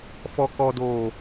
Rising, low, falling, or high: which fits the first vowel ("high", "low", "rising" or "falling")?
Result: low